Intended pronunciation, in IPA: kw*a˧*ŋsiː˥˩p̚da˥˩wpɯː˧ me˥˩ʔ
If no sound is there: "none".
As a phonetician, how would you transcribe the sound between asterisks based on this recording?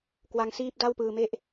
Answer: a˧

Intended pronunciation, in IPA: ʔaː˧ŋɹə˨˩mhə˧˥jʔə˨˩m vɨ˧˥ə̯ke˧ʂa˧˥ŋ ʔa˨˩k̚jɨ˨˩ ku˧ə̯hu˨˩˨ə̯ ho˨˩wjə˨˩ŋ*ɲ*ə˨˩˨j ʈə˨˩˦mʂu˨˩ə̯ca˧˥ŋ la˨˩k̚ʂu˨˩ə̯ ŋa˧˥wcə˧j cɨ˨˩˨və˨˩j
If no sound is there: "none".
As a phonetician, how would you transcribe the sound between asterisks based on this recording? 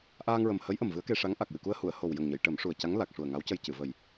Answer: ɲ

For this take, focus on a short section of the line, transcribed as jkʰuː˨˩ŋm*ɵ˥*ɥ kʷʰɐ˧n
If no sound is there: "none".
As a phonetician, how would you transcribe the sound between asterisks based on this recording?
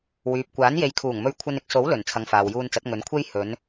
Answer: ɵ˧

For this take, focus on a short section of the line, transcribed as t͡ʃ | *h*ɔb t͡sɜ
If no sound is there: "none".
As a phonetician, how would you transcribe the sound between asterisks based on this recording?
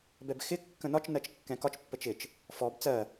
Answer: f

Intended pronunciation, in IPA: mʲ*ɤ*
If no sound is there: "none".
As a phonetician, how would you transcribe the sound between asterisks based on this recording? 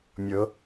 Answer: ɤ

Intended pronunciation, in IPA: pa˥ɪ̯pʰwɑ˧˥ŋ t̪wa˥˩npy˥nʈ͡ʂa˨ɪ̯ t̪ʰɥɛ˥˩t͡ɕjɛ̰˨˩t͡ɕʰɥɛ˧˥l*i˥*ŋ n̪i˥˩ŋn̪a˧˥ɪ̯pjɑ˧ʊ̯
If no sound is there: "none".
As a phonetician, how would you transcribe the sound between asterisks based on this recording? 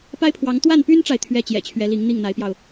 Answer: i˧˥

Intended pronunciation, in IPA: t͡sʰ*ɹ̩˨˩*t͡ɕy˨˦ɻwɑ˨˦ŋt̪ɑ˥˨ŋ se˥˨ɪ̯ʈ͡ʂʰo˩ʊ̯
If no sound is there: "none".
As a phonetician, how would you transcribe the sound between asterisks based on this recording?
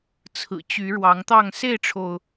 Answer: ɹ̩˨˩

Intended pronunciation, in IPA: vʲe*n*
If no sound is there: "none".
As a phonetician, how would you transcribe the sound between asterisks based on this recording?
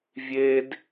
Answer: d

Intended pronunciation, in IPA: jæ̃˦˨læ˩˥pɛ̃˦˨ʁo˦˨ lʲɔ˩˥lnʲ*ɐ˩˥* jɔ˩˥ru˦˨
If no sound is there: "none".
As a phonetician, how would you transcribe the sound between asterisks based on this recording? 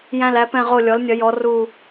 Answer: ɐ˩˥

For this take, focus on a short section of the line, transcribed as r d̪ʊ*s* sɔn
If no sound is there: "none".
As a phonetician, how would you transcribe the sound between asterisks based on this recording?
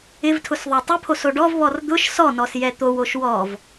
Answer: ʃ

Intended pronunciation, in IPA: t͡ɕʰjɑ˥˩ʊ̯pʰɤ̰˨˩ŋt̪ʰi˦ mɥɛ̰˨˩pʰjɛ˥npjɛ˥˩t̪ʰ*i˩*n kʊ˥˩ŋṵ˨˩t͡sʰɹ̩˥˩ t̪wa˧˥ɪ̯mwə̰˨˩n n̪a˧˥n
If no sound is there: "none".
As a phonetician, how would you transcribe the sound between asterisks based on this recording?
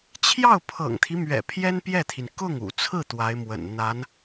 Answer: i˩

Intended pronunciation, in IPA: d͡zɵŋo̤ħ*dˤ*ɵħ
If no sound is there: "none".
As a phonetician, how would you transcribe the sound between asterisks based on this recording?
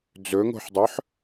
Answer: dˤ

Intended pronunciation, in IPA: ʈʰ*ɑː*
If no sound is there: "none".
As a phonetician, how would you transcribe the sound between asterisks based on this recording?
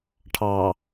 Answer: ɑː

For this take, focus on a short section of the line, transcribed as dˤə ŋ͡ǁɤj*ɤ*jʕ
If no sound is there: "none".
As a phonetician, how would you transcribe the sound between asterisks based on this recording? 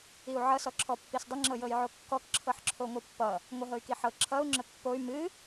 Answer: ɤ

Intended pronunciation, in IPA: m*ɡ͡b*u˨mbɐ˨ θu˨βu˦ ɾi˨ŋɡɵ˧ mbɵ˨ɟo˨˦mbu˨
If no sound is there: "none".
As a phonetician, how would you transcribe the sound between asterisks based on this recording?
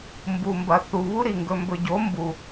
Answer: b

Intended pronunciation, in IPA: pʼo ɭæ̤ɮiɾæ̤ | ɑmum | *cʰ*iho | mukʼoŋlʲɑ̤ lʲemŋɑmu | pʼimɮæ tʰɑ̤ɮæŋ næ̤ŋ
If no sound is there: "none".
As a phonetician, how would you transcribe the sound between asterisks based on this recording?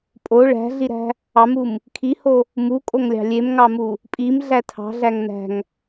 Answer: kʰ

